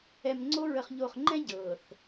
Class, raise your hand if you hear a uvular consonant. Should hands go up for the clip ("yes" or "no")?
yes